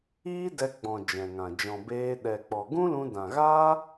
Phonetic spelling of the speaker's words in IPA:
iː˦ d ɛ˧ ɡ͡b ɔ̃˨ d͡ʒ ɛ̃˨ ŋ ã˨ d͡ʒ ɔ̃˨ b eː˧ ɗ ɛ˨ k͡p ɔ˨ ɡ ũ˦ l ũ˧ d ã˨ ɣ a˦

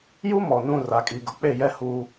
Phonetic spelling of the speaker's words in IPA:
j u˦ m ɔ˨ n ũ˦˨ r a˨ kʼ i˨ ɡ ʊ˨ k͡p e˦˨ j ɛ˦ h uː˦

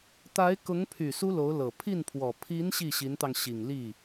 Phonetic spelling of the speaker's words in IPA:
t̪ a˧˥ ɪ̯ k ʊ˧˥ ŋ pʰ y˨˩ s u˥ l o˧˥ ʊ̯ l ɤ˨˩ pʰ i˥˩ n pʰ w ɔ˨˩ pʰ i˧˥ n ɕ i˥˩ ɕ i˧˥ n t̪ ɑ˧ ŋ ɕ i˨˩ ŋ l i˥˩

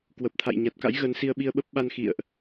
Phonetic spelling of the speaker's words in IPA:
k w ə˨˩ p̚ t̪ʰ a̰˧˨ j ɲ a˨˩ t̚ k a̰˧˥ j ɣ ə˨˦ n s i˧ ə̯ ɓ i˧ ə̯ ɓ ə˦˥ p̚ ɓ a˧ n x ḭ˧˨ ə̯ ʔ

